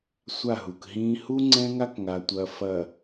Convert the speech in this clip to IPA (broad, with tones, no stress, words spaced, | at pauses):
sʷa˦˨ɦu˨kɦĩː˦ hu˦ ŋ͡ǀɛ̃˦ŋa˦kŋa˨tʷɐː˨ fɐ˨